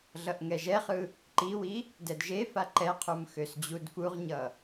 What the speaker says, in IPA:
ɮʌʔŋɛʒɛχɯ | ǃiwi | dɛdʒefa ǃɛqʰum xøsd͡ʑudfuʁɲʌ

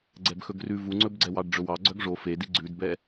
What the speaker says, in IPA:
ɡ͡ǀɛbxɵɡrʉ vuŋ͡ǀɵbɡ͡ǀɛ wɑɖɖ͡ʐɵwɑ ɡ͡ǀœɡʐo fedi ɡ͡ǀʉdbɛ

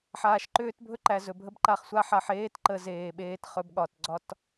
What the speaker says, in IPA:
ħaː˨ʃǃʏː˦tbʱɵ˦ǃæ˨ zɵ˨bʱə˦bǃa˦χsʷa˦ ħa˨ħeː˦tǃə˨ zeː˨ɓeː˦tχɵ˦bɠɒ˨t ɡ͡ǀɒ˦t

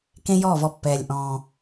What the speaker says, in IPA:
kẽ˦jɔː˦˨vɔ˧ pːɛː˨lʲʔɔ̃ː˨

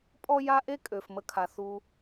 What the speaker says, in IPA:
pʼɔ˦ ja˦ ʔe˦kʼø˨f mə˦kʰa˧ θu˧

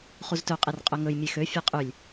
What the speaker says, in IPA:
χuztɵqʼer qʼøŋɵj mʲexø fʲeqʼylʲ

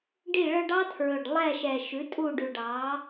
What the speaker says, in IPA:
ɖi˥˨ɭœ˥ɖ ɑ˥tʰɹɵ˨˩ɖ lˠɛ˥˨ʃɛ˨˩ ʃʉ˩˥ tʼu˥˨ɖʉ˨˩ɖɑ˩˥

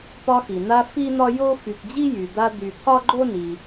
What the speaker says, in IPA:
pɒ˦xi˩ n̪a˦ fi˥n̪ɒ˥jo˥ fy˨kd͡ʑi˥ jy˩d̪a˦ d̪y˨t̪ʰɒ˥ɡ͡ǃo˥ ni˩

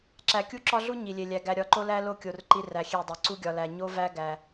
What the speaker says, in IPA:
ǁæ˨kʲu˦ǁɒ˦ɮu˦ ɲi˨lʲe˨lʲæ˨ ɡæ˨ɾʲɒ˨˦ǃo˦ læ˦ lo˦kʲo˨r ǃi˦ræ˨xʲe˦˨dˤe˨ ǀu˦ɡʲɒ˨læ˨ ɲo˦væ˦ ɡæ˨

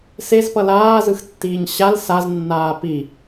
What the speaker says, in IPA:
sezpʌ laːzɯxtːiːɲ ɕal saznːaː pi

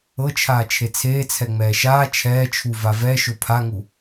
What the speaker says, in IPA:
ɤt͡ʃʰaː t͡ʃʰet͡sʰeːt͡sʰɛ ŋ͡mɛːʃaː t͡ʃʰɛːt͡ʃʰu vavɛ ʃopʰaŋu

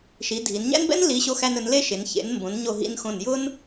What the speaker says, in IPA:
ʃi˩˧dʱi˩˧n ɲæ̰˥nbɛ̰˥n li˩˧ ɕo˧xæ˧nɵ˩˧n le˥ ʃe˩˧n çḛ˩˧nmbõ˩˧n ɲo˧˩ɦḭ˧nxõ˧˩njʊ˥n

